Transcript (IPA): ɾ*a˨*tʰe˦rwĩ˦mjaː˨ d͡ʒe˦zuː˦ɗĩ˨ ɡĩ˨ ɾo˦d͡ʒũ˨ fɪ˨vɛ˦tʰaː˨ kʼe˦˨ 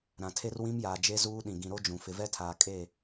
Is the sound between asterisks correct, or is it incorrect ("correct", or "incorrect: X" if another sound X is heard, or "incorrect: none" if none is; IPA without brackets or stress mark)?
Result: incorrect: ã˨